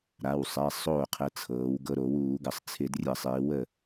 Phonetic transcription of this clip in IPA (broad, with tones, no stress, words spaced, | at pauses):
ɾa˩˧˩wsˤɛ˩˧˩ sˤoː˥˩qʰə˧t͡sʰɤː˩˧w ɡɤ˧ɾo˧˩˧wuː˧˩˧ ɡə˩˧sˤt͡sʰɪ˧˩˧drʲə˧˩˧ sˤɪː˩˧wə˥˩